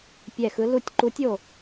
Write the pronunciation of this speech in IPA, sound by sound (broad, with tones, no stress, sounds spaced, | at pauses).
pʲ ɛ˦˨ x ɯ˧˥ l u˦˨ tʲ ǃ u˧˥ tʲ o˦˨